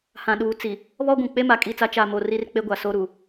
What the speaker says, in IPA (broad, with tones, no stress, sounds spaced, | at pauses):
h ã˨ ɗ uː˨ t͡s i˨ | β ɔ˦ ɡʷ ũ˨ k͡p e˦ m a˨ kʼ i˦˨ t͡s a˦ t͡ʃ a˨ m o˨ r i˦ r k͡p e˦ ɡʷ a˨ s o˦ ɾ u˨